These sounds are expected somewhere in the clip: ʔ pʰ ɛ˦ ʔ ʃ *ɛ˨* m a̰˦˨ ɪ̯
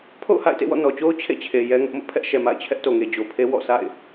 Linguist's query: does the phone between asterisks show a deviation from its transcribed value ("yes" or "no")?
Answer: no